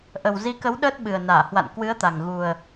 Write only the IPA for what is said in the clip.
ʔ ə˨˩ w z i˨˦ k ə˨˦ w ɗ əː˦˥ t̚ ɓ ɨ˨˩ ə̯ n aː˧˩ h w a̰˧˨ n k w ɨ˨˦ ə̯ t̪ a˨˩ ŋ ɣ u˨˩ ə̯

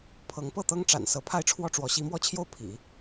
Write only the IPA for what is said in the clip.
pʰ ɤ˧˥ ŋ p ɤ˥˩ t̪ ɤ˥ ŋ ʈ͡ʂ a̰˨˩ n s ɤ˧˥ pʰ a˥˧ ɪ̯ ʈ͡ʂʰ w ɔ˥˩ ʈ͡ʂ w ɔ˧˥ ɕ i˧˥ m w ɔ˥˧ t͡ɕʰ j o˥˩ ʊ̯ pʰ ḭ˨˩˦

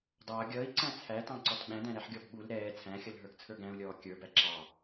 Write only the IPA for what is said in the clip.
dˤ ʌː ɡʲ ʌː i̯ ǀ æ̃ t͡sʰ æ t ɑ̃ ǀ ɔ t ɓ æ̃ d æ̃ ɾ æ ħ ɡʲ ɔ b ɓ u l ɾ ɛː t͡sʰ æ̃ xʲ ʌ l ɦ ə˞ ɡ t͡sʰ ə˞ ɡ æ̃ u̯ lʲ ɔː kʲ ə˞ b æ ǁ ɑ

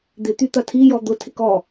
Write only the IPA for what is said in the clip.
d̪ ɪ t̪ y t̪ ɐ tʰ i j ɔ d̪ ʊ tʰ ɪ k ɔ

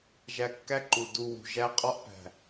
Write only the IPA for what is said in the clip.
ʒ æ˧ kː æ˦ ǃ u˨ d u˧ w ṳ˨ ʒ æ˦ qʼ ɒ˦ ʔ p æ̤˨

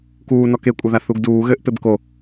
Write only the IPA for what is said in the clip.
k uː n ɔ k e kʷʼ ɘ ð a θ u ɡ d uː ɣ ɘ ʔ p e b k o

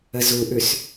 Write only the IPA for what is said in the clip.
ə z u ʔ ʉ s

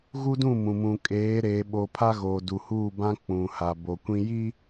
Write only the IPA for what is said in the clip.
ɣ u˦ d ũ˦˨ m ũ˨ m ũ˨ kʼ eː˨˦ ɾ eː˨ ɓ o˨ pʰ a˦ ɣ oː˨ d u˨ h uː˦˨ b ã˦ k͡p ũ˨ h a˨ b o˨ kʷ ĩ˦ j i˦

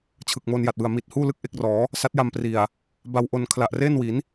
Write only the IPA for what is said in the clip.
t͡ɕʰ ɯ˨˩ k̚ m o˧ n j a˨˩ t̚ w ɯ˨˩ a̯ m i˨˩ t̚ h uː˥˩ l ɯ˥˩ k̚ ʔ e˦˥ k̚ r ɔː˩˦ | s a˦˥ t̚ j a˧ m p r i˨˩ a̯ | b a˧ w ʔ o˧ n kʰ l a˨˩ ʔ r eː˥˩ n w i˩˦ n

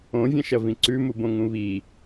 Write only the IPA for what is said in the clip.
õ vʲ ɐ̃ ʃ ɐ v ĩ ǀ ʉ m u b õ ŋ ũ β i

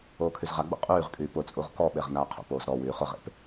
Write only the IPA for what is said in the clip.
oː kʰ y z ʁ a ɡ͡b o̰ qʼ yː ʁ kʼ yː p ʊ t͡sʼ u ʁ k ɔ ɓ e ʁ n aː qʰ o̰ p oː z ɾ ɔ w yː χ ʊ ʁ ḛ p

